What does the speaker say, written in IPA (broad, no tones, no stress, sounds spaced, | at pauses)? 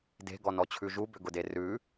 d e̤ ɡ ɔ n ɔ t͡ɕʰ ʉ ʒ u b ʏ ɡ ʊ d e r ʉ